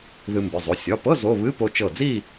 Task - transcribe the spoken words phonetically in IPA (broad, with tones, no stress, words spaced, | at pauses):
ðɨ˧ mbɨ˩˧˩zˤo˩˧˩ sʲɒ˩˧˩pɤ˧˥˧ zo˧˥˧ βɨ˧˥˧po˧t͡ʃɤ˧˩d͡zi˥˧